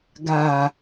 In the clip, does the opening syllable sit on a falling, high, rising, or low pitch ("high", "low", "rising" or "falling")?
low